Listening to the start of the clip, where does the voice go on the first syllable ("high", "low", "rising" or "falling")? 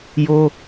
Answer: high